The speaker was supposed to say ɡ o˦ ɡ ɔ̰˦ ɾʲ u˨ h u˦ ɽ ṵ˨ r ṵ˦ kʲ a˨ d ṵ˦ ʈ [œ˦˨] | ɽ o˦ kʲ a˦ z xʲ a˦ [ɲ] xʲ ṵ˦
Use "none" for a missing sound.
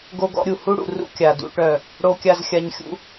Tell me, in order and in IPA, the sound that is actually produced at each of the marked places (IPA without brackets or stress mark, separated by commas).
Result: œ˦˨, ɲ